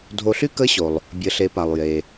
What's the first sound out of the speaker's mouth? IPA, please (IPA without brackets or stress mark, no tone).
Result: dʱ